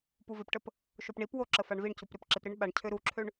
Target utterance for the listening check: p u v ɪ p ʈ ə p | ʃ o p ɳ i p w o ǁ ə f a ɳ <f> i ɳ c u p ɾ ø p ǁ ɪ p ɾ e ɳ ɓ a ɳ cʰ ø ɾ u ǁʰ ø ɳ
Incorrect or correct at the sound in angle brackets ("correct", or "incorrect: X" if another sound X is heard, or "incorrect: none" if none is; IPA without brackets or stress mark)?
incorrect: v